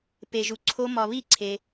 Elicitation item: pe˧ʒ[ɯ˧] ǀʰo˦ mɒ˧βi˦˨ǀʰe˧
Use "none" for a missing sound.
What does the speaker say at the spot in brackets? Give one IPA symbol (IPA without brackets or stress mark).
u˧